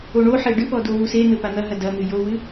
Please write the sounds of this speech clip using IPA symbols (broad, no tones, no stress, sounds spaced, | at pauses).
o ɳ o ħ e ɖ ɨ p ɔ d o w u s e n̪ ɘ p a n̪ ɐ ɦ ɐ d ɐ n̪ ɨ j o w ɨ